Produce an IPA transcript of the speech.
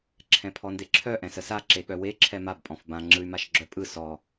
ǁʰɛ̃pʰɔndeǁʰœ ʔɛ̃səsa ǁeɠœwe ǁʰɛmab pʼɔ̃fbã ŋ͡ǁɯy̯maʃɡ͡ǁœpʼɯ sɔ

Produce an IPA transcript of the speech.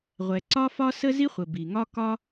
ʁʷɛ˩ǀɒ˥fɒ˥ sə˥zi˥χʷə˩ bi˩ŋɒ˥ kɒ˥

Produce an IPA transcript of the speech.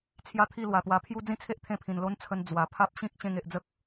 t͡sʰja˦t̪ʰi˥˧ lwa˨˩t̪wa˧ pʰju˦ d͡zĩ˦t͡sʰe˦ʔt̪ʰẽ˧pʰĩ˨˩n lo˦n t͡sʰə˧n d͡zwa˨˩pʰa˦p̚ ɕĩ˦k̚ ɕẽ˧ŋe˨ʔd͡zə˦k̚

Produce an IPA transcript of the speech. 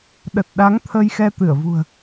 ɗə˨˩t̚ɗa˨˦ŋ t̪ʰə˧jxɛ˧t̪ɨ˧˩ə̯vṳ˨˩ə̯

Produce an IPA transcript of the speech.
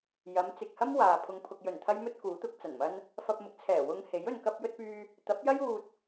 jɐ˨˧m t͡sɪ˨k̚hɐ˥m waː˨ pʰʊ˨ŋpʰʊ˨k̚jɵ˨˩n t̪ʰɐ˥jmɵ˥t̚kuː˨˥t̪ʊ˨˥k̚ t͡sɐ˨˩nmɐ˥n | fɐ˧p̚mʊ˨˥k̚t͡sʰɛː˨˩ wʊ˧ŋhe˨˥j ɵ˨nkɐ˧p̚jɵ˧t̚pyː˧ | t̪ɐ˨˥p̚jɐ˥j uː˧t̚

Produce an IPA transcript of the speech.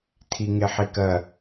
tʰiŋeħikɜ

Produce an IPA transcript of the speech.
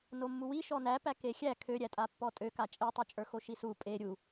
nomːuwi ʃɔnæpæ kexʲæ kʰøɾʲætʼapːɔ tʼø kat͡ʃʼetˤo t͡ʃʼə˞xoʃisu pʼe ɾʲu

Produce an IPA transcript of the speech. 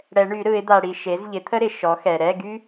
ɽɛ˨˩˦ɳy˨˩˦ɾɯ˨˩˦ɪ̯ d̪a˨ɽi˨ ʃe˩˥z ʎɪ˩˥t̪ʰə˥ɾɪ˨˩˦ ʃɔ˩˥xɛ˨ ɾɛ˧˥˧ɡy˥

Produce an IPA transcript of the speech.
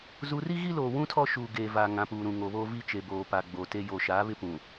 zu˨ri˦ ɣi˦loː˨wũ˦ tʰɔ˦ʃuː˨ɡeː˨vaː˨ ŋã˨puː˨ɾũ˨ ŋo˨βoː˦vi˦t͡ʃe˨ boː˨pa˨ ɡ͡bo˨ te˦ joː˨ʃaː˨˦βɪ˦pũ˨

